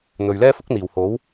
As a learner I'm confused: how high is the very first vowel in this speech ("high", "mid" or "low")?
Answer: mid